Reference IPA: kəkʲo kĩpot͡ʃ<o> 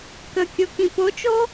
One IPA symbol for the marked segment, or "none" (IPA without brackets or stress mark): o